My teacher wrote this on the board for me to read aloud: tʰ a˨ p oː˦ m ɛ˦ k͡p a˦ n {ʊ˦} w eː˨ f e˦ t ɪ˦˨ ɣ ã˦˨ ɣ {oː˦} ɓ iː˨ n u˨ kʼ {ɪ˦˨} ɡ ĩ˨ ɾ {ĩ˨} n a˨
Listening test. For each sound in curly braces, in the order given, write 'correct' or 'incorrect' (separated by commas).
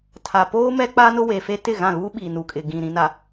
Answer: correct, incorrect, incorrect, correct